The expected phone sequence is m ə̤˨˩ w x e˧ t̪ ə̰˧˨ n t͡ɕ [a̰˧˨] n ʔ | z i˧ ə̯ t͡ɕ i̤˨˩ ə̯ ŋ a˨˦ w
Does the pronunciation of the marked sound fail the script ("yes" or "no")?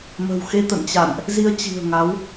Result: no